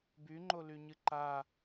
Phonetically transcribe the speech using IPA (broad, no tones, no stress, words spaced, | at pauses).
byŋ͡ǃolyɲɨ ǃa